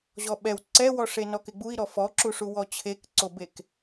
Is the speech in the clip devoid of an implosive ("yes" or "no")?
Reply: no